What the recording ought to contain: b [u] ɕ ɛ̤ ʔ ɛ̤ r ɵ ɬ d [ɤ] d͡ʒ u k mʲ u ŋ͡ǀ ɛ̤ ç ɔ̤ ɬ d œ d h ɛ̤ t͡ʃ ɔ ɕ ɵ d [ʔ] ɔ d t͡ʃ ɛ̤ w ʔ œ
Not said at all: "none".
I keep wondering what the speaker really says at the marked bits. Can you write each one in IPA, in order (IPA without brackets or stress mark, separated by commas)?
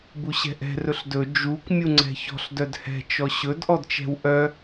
u, ɵ, ʔ